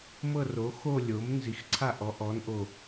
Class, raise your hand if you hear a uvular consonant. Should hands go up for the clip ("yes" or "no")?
no